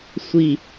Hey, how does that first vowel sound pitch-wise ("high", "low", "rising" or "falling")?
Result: falling